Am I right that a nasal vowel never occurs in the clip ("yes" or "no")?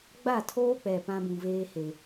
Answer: no